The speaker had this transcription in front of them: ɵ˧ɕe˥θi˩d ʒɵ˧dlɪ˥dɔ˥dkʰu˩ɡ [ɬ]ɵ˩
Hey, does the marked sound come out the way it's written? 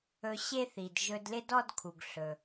yes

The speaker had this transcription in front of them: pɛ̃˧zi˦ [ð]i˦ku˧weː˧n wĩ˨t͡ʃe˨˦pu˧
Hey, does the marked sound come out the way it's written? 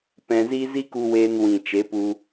no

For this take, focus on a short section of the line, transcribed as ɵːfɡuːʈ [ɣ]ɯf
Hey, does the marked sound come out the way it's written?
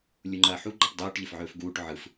no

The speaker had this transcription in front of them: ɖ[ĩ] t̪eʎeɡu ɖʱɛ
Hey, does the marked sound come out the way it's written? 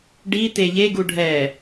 no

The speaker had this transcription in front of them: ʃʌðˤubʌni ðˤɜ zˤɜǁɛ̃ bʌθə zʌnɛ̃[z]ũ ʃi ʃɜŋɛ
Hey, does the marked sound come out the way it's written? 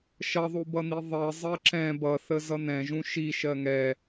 no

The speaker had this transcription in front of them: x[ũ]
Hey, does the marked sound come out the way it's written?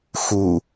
no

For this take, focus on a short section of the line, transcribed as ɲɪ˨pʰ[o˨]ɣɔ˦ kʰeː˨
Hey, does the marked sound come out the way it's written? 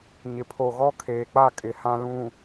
yes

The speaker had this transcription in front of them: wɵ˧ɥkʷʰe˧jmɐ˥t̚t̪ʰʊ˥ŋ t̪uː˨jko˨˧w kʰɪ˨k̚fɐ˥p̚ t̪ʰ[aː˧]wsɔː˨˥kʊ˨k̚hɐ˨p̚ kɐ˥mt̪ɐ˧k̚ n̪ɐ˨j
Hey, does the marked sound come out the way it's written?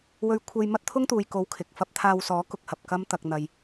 yes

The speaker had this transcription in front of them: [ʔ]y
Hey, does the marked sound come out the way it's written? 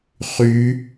no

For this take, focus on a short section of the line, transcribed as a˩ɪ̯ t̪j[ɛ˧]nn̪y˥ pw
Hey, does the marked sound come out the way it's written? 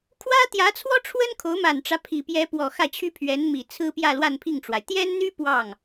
no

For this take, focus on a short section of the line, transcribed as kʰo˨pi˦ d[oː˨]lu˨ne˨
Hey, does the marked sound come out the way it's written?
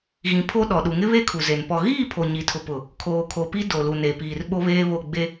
no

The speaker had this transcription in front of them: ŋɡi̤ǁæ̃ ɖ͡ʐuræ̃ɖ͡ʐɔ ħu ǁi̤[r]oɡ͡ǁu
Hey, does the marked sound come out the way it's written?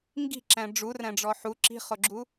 no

